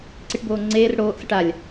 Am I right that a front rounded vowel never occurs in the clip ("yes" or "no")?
yes